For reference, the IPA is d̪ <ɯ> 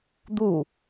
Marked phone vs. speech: incorrect: u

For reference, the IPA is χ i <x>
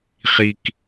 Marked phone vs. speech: incorrect: k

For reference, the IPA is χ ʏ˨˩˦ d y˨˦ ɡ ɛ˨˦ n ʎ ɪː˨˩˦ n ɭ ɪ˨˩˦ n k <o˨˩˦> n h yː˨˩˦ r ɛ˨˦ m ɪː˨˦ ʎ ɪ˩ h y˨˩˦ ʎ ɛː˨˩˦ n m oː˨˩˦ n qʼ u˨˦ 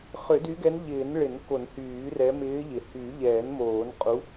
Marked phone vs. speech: correct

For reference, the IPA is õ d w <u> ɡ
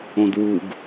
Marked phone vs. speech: correct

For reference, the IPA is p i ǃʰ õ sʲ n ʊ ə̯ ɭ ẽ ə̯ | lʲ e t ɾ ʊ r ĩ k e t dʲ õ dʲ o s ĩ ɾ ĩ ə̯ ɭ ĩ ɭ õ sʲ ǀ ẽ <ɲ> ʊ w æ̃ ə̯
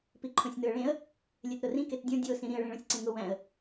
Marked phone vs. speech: incorrect: ŋ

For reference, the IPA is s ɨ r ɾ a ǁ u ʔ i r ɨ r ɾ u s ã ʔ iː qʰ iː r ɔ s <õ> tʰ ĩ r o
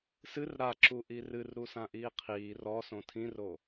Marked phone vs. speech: correct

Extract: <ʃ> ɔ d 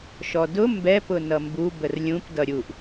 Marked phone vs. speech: correct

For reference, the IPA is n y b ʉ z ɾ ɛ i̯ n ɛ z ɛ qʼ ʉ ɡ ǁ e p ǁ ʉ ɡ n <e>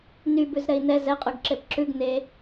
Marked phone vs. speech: correct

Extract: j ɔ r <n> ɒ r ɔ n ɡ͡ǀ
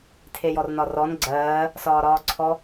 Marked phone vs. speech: correct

